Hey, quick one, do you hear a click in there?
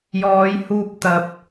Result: no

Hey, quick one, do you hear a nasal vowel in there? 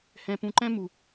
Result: yes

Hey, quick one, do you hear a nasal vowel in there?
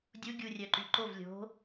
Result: no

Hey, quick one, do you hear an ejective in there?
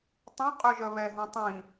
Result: yes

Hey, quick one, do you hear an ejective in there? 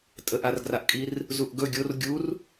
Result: yes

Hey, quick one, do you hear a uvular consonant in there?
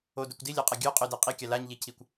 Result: yes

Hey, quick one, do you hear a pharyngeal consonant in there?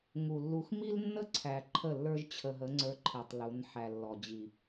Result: yes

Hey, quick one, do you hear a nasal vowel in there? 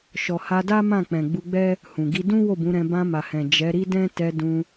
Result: yes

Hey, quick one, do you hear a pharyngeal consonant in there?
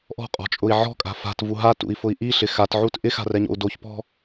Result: yes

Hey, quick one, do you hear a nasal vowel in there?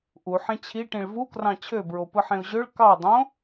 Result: yes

